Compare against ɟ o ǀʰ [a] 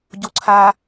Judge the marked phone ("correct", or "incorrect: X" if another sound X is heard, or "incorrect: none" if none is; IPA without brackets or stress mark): correct